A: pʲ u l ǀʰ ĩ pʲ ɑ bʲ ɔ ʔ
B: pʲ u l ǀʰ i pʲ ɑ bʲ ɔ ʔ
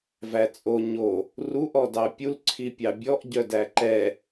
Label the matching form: B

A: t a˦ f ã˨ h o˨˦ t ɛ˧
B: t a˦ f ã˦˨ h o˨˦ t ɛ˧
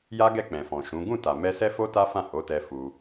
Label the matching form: B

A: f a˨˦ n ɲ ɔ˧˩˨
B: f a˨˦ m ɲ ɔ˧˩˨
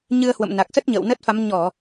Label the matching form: B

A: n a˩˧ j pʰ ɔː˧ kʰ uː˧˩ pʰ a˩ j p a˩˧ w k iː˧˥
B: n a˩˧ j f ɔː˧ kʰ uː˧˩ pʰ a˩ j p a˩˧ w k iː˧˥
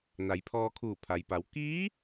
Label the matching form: A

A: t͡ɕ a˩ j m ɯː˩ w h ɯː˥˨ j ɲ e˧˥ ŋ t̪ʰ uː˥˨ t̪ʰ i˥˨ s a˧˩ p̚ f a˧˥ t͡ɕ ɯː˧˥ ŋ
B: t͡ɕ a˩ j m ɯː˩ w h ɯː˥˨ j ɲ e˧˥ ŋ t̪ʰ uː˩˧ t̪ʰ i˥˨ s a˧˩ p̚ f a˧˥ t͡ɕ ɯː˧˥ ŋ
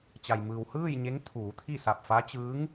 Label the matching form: B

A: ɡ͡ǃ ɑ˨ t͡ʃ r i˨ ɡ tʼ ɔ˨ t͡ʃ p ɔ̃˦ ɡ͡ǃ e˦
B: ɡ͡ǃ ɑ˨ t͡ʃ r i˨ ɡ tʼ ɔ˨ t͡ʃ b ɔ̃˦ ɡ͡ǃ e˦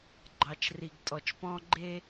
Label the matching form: A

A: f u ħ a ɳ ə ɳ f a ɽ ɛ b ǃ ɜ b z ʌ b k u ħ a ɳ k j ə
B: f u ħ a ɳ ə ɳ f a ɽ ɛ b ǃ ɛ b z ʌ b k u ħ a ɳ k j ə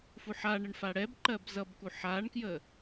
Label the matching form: A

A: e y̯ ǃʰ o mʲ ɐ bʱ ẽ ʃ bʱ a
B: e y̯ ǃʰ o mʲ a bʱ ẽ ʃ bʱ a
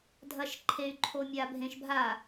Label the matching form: B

